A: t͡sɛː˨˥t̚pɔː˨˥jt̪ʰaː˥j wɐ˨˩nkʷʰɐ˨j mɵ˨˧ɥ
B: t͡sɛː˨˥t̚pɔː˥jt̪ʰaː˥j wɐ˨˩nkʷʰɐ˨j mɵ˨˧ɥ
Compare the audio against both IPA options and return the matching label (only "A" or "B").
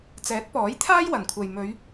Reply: A